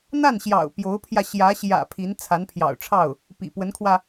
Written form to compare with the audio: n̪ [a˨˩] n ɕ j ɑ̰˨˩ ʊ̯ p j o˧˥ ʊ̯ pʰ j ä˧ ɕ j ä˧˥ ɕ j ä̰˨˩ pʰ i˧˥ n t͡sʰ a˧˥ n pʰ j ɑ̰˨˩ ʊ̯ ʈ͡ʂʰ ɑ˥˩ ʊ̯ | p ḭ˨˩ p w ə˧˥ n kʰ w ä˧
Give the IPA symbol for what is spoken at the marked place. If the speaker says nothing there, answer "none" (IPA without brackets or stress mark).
a˥˩